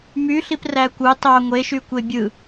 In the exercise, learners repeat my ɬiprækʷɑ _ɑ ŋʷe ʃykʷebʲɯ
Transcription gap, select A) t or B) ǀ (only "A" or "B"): A